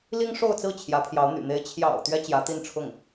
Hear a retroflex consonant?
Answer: yes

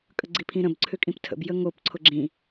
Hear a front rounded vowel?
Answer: yes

